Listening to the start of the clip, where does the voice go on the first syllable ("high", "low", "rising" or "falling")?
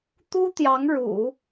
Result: high